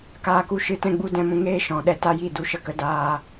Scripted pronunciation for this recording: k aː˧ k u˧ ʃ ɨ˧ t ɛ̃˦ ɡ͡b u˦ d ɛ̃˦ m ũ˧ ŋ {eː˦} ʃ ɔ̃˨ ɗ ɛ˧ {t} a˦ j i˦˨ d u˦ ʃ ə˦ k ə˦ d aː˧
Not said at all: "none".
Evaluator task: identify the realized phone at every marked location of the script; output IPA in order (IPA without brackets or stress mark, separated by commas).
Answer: eː˦, t